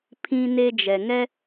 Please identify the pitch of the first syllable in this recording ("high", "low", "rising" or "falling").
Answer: high